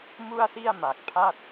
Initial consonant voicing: voiced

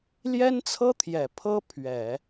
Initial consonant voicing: voiced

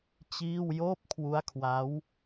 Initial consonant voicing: voiceless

